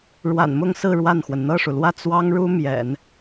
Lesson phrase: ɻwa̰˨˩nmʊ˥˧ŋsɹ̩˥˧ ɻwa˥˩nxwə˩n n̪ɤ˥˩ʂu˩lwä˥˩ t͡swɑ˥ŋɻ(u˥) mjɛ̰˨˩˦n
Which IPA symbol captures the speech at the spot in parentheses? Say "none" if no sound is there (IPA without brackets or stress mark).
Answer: u˥